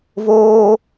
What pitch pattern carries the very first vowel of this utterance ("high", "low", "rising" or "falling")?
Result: high